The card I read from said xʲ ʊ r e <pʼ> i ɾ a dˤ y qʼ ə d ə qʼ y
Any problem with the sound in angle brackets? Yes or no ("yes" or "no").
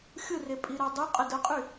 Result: no